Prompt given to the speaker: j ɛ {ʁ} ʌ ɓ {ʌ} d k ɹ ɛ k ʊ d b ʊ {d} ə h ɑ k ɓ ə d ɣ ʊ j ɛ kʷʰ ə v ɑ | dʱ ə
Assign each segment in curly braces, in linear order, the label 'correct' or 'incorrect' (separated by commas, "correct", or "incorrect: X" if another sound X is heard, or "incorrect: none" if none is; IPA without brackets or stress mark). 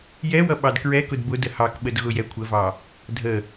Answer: incorrect: w, incorrect: ɑ, correct